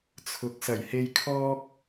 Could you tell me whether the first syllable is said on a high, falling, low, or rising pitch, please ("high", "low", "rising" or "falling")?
rising